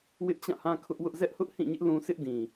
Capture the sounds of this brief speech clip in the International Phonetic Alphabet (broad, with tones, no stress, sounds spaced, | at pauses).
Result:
w ɪ˦ ʔ t͡ɕ ã˦˨ h ã˦ kʰ ʊ˦ ʔ w ʊ˦ ʔ z ɛ˦ ʔ h ʊ˦ ʔ h ĩ˦˨ ɲ ɪ˦ ʔ l ũ˦ sʰ ɪ˦ ʔ d ĩ˨